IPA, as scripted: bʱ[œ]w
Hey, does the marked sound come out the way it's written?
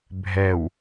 no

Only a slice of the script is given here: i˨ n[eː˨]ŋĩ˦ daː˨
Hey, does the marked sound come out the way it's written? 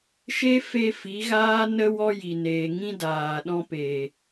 yes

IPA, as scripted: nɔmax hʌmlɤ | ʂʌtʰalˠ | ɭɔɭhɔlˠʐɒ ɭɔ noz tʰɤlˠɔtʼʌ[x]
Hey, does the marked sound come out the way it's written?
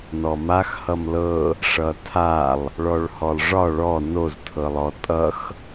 yes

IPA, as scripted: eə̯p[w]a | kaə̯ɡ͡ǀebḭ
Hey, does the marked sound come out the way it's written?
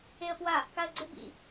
yes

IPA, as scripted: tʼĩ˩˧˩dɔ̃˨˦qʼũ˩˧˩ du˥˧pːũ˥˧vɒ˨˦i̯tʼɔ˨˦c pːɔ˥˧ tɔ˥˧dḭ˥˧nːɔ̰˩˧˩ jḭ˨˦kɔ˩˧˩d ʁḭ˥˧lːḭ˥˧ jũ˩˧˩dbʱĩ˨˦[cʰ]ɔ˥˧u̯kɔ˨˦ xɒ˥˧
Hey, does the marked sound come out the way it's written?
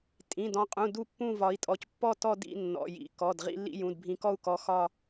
no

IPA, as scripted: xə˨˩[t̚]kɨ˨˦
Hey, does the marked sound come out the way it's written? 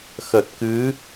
yes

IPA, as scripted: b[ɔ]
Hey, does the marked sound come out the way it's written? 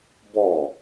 yes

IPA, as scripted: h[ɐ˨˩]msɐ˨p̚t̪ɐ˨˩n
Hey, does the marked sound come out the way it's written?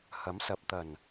no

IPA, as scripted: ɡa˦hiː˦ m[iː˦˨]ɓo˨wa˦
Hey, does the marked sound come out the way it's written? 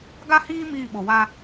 yes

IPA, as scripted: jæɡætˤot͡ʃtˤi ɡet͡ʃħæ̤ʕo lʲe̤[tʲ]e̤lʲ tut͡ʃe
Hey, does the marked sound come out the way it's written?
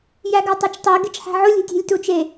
yes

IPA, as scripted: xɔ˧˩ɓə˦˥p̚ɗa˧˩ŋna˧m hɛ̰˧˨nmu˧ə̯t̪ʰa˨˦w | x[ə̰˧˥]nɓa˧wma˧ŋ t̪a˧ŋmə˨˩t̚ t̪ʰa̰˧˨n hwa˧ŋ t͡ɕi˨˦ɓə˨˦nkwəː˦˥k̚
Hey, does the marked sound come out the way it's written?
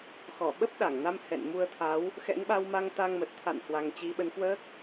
no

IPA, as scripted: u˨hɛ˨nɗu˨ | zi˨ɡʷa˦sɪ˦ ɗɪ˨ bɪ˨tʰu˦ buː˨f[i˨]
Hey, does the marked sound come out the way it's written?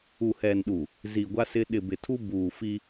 no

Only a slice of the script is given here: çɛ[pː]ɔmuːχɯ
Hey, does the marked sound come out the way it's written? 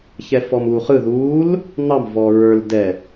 no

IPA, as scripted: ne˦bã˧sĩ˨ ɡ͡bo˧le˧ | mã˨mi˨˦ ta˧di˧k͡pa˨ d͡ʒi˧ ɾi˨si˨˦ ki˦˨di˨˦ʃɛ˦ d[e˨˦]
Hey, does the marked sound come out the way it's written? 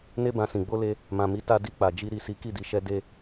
no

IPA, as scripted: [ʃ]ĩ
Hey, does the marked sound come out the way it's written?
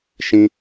yes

